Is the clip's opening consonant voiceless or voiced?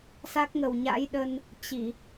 voiceless